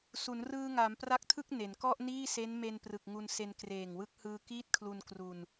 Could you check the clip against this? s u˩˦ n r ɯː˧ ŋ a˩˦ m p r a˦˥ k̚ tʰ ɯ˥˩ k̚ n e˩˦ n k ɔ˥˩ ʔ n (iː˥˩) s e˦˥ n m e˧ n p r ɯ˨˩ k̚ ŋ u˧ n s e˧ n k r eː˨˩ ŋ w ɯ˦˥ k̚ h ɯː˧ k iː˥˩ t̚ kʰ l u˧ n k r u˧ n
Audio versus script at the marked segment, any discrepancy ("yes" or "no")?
no